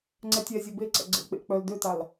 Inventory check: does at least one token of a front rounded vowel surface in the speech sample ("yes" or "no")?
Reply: yes